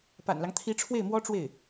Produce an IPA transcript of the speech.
p a̰˨˩ n l ɑ˦ ŋ t̪ʰ i˧˥ ʈ͡ʂʰ w e˥˩ ɪ̯ m w ɔ˥ ʈ͡ʂ w e˥˩ ɪ̯

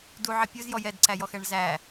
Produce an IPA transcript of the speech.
d u ʕ ɪ pʲ ʊ z j ɔ j ɛ d ǀ æ j ɔ x ɛ ɳ z æ

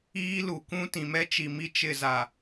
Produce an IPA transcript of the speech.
iː˦ l u˨ k ũ˦ t ĩ˨ m ɛ˦ t͡ʃ i˨ m i˦ t͡ʃ ɪ˦˨ z a˨

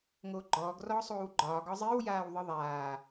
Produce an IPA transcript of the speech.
ŋ oː ɡ͡ǃ ɔː ɡ r ɔː sˤ oː w ɡ͡ǃ ɒː ɡ ɒ zˤ iː w j aː w ðˤ ɯ ðˤ aː

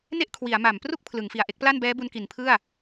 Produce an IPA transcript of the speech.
n e˥˩ ʔ kʰ w i˩˦ a̯ m a˩˦ m p r u˥˩ k̚ pʰ l ɯ˩˦ ŋ f i˨˩ a̯ ʔ e˦˥ k̚ p l a˥˩ n b ɛː˦˥ b u˧ n k i˩˦ n pʰ ɯ˥˩ a̯

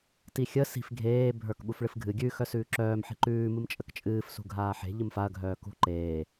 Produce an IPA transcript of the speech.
t i xʲ ə s i̤ f ɡʱ eː bʱ ə˞ k ɓ u f ɭ ɨ f ɡʱ ɨ ɡʲ ʉ x œ s ʉː ǁ œː m ħ i̤ ǃ ʉː m ɨ m t͡ʃʼ ə k t͡ʃʼ ɨː f s ṳ ɡʱ aː ħ e̤ ʎ ɨ m f a ɐ̯ ɡʱ œː k ṳ ǃ eː

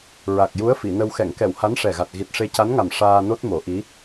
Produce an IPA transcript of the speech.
ɹ a˨˩ k̚ j u˧˥ ə̯ f i˨˩˨ n ə˧ w x ɛ˨˩˨ ŋ k ɛ˨˩˨ w h a˧˥ n ʂ ɛ˨˩ ɣ a˨˩ t̚ ɣ i˨˩ t̚ ʂ e˧˥ c a˧˥ n ŋ a˨˩ m ʂ aː˧ n o˦˥ t̚ m o˨˩˦ ʔ i˧˥

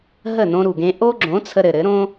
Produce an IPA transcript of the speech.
ɦ ə˦˨ n õ˧ ɾ u˨ ɡ ẽ˧ ʔ o˦ ɡ͡ǁ õ˨˦ t͡sʰ ə˧ ɾ ɘ˨ ɾ ɘ˨˦ ɾ õ˦

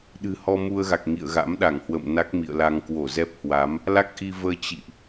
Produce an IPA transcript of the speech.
ɗ ɨ̤˨˩ h ɔ˧ m u˧ ə̯ ɣ a˨˩ k̚ ŋ ḭ˧˨ ə̯ ɣ a̰˧˥ m ɗ a˧˩ ŋ h w ə̰ː˧˨ m n a˦˥ k̚ m ḭ˧˨ ə̯ l a˧ ŋ k w o˧˩ z ɛ˦˥ p̚ h w a˨˦ m | l a˦˥ k̚ ʔ i˧ v əː˧ t͡ɕ ḭ˧˨ ʔ

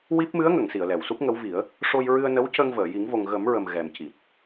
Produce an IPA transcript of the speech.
w i˦˥ p̚ m ɨ˧˥ ə̯ ŋ ə˨˩˨ ŋ s i˨˩˨ ə̯ l ɛ˨˩˨ w s u˦˥ p̚ ŋ ə˧˥ w v i˨˩˦ ə̯ | ʂ o˧ j ɹ ɨ˧ ə̯ n ə˧˥ w c ə˧ ŋ v əː˨˩˨ j i˨˩˦ ŋ v o˨˩ ŋ ɣ ə˨˩˦ m ɹ ə˨˩ m ɣ ɛ˨˩ m c i˨˩ t̚

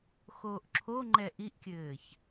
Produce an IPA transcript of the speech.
x oː ʔ ǁʰ o ŋ͡ǃ ɛ ʔ i ʔ kʲ ɘː ç

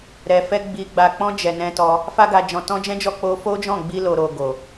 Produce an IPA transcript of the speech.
ɾ ɛ˨ f ɛ˧ ɡ͡b i˨ ɡ͡b a˨ k͡p ɔ̃˧ d͡ʒ ɛ˨ n ɛ̃˧ t ɔ˧ | f a˧ ɡ a˨ d͡ʒ ɔ̃˨ t ɔ̃˧ d͡ʒ ɛ̃˦ d͡ʒ ɔ˧ k͡p o˧ f o˦ d͡ʒ ɔ̃˦˨ ɡ͡b i˧ l o˨ ɾ o˨ ɡ o˨

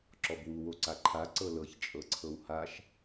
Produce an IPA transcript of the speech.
ǁ ɔ b w u w o ǀ a ǃʰ a ǀ ɤ l ɤ ç t͡ʃʼ ɤ ǀʰ ɤ w h a ʃ

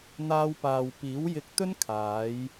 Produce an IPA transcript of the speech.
n̪ aː˥ w p aː˧ w p iː˨˥ w j ɪ˧ k̚ t̪ ɵ˥ n kʰ aː˨˥ j

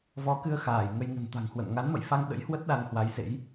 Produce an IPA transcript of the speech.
v ɔ˨˦ k ɨ˧ ə̯ x aː˧˩ j ŋ ə˧ j ŋ ə̤˨˩ n t̪ a̤˨˩ ŋ h w ə̰˧˨ n ŋ a˨˦ n m ə̰˧˨ j f a˧ ŋ ɗ ə̰˧˥ j h w ə˦˥ t̚ ɗ a˧ n h w a˨˦ j s ḛ˧˥ j

